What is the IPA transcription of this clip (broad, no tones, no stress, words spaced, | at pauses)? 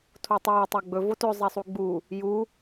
tʰotˤɛː tˤæɡ͡bɵ votɵ zˤɛsˤuɡ͡bu | ju